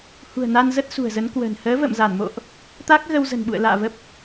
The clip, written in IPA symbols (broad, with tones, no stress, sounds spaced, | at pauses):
h ṳ˨˩ ə̯ n a˧ n z ə˦˥ t̚ s ṳ˨˩ ə̯ z ə˨˦ n k w ə̤ː˨˩ n h əː˨˦ v ə̰˧˨ m z a˧˩ n m o̰˧˨ ʔ | t̪ a˦˥ k̚ ɣ ə˧ w z ə̤˨˩ n ɓ ṵ˧˨ ə̯ l a̰ː˧˨ v ə˦˥ p̚